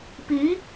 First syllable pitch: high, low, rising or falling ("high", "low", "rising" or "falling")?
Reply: rising